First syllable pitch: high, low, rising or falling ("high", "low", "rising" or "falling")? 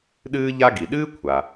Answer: high